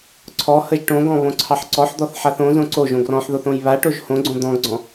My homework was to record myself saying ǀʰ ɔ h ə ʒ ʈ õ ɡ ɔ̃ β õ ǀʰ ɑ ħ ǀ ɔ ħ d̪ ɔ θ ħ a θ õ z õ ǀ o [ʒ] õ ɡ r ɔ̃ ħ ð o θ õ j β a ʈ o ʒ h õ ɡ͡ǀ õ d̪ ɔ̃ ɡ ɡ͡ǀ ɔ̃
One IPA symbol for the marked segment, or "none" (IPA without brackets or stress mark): ʒ